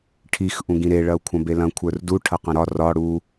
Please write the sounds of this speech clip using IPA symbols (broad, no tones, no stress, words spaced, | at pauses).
ʈʰix ʔũɡĩɾe ɭɐu̯kʷʰɐ̃belɐ̃ kʷʰə˞rdu ʈʰɐqɐ̃ɾɒ rɒ ɽu